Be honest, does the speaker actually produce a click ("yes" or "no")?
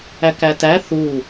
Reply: no